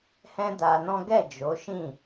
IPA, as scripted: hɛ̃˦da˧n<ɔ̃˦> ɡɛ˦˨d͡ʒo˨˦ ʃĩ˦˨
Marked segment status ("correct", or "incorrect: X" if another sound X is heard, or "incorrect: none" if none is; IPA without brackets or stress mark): correct